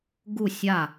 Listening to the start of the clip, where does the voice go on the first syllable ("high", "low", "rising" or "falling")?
falling